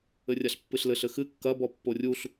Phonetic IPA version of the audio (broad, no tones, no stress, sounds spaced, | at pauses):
ɘ rʲ a ɬ pː ɨ ɬ l ɘ ɬ ɘ x ɨ kː ɐ b ɔ pː o rʲ u ɬ